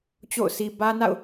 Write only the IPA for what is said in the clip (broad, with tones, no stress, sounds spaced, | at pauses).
t͡ɕ o̰˦˨ ʊ̯ sʰ i˨ b ä˦ n a̰˦˨ ʊ̯